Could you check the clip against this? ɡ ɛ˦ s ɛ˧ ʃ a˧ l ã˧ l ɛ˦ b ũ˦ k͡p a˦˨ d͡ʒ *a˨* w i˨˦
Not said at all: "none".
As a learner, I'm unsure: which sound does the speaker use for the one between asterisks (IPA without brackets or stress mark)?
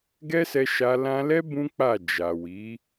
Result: a˨